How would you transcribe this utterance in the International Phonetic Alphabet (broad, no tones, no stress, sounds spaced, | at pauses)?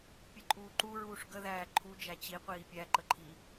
pʲ ə ǃʼ uː ǃ u ɹ uː ʂ ɡ ə ð æː ǃʰ u d͡ʒ æ t͡ɕ i qʷ iː pʲ æ ǃ ə ǃʰ i